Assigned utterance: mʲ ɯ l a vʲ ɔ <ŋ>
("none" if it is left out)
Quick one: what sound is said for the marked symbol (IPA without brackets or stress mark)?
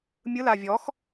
x